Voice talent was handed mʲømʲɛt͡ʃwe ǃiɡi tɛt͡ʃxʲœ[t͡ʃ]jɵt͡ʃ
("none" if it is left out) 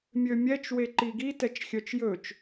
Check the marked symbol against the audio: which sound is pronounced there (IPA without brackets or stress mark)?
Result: t͡ʃ